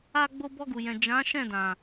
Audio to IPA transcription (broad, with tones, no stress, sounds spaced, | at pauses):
a˧ ɡ͡b o˧ b ɔ˧ ɡ u˨ j ɛ̃˨ d͡ʒ ã˨˦ ʃ ɛ̃˦˨ d ã˨